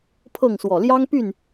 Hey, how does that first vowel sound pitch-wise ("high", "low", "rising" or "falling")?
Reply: falling